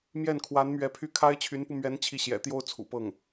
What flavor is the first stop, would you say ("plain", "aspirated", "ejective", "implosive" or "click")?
aspirated